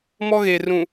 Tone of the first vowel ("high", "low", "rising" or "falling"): high